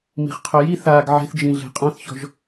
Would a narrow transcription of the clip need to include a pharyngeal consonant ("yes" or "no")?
yes